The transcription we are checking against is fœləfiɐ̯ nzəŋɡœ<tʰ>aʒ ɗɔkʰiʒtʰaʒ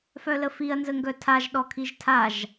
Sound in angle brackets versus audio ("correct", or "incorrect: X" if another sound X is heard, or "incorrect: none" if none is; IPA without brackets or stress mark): correct